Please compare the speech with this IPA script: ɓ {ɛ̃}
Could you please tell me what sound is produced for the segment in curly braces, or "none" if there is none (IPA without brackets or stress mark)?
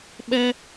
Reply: ɛ